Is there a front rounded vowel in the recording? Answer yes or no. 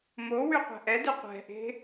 yes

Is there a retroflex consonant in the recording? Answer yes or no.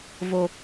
no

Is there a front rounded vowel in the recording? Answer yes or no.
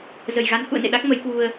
no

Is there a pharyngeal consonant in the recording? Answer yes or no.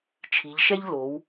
no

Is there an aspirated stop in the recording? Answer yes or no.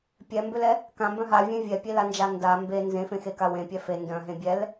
no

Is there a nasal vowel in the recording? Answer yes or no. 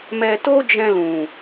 yes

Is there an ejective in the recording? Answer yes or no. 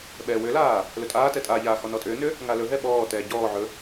yes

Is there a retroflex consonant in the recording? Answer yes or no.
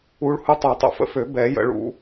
yes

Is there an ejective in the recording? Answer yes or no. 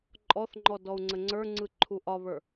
yes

